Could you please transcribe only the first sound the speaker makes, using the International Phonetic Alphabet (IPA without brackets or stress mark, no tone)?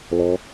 l